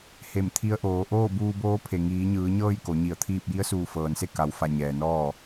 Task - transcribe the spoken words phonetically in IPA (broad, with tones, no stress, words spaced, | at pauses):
he˧˩mt̪ʰi˧˥ə̯ʔoː˩˧ ʔoː˥˨buː˧boː˧˥pʰe˩ ŋiː˩˧ɲɯː˩˧ɲɤː˥˨j ko˩˧ɲi˧˩ə̯t̪ʰiː˥˨p̚ ji˧˥ə̯suː˧˩fɤː˩nse˥˨ ka˩˧wfa˧˩ ɲɛː˩nɔː˥˨